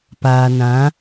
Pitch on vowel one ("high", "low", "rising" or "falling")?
low